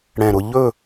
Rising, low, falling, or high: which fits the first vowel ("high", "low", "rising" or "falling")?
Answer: low